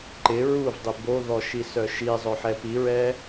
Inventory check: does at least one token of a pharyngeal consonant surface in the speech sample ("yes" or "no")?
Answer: yes